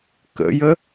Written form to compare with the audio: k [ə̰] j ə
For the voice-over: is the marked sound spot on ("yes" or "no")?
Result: yes